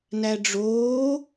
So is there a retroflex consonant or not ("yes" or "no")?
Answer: yes